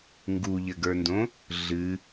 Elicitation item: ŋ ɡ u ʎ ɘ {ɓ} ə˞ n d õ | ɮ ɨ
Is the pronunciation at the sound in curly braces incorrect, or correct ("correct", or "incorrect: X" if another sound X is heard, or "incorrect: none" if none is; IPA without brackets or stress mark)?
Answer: incorrect: ɡ